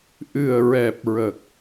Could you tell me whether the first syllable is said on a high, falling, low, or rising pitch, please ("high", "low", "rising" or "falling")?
low